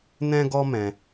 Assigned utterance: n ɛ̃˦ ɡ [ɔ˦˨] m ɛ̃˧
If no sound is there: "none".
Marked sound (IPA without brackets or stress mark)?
ɔ˦